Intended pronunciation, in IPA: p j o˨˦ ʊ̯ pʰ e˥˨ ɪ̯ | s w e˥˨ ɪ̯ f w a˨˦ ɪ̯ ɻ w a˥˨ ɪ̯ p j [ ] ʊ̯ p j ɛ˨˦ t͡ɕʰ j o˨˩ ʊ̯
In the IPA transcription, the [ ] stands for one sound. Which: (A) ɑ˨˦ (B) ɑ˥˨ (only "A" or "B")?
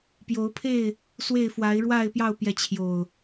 B